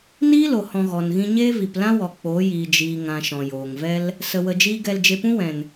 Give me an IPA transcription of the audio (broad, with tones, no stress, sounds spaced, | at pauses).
n iː˦ l o˨ h ɔ̃˧ ɣ ɔ˨ n ɣ ĩ˦ ɲ eː˦ v i˨ p l ã˦ w ɔ˨ k͡p oː˨˦ j iː˨ d͡ʒ iː˨ ŋ ã˨ ʃ ɔ̃˨ j oː˨ ŋ v ɛ˦ l | s ə˧ w ə˧ d͡ʒ iː˦ ɡ ɛ˧ l d͡ʒ e˧ p ũ˦ w ɛ̃˨ n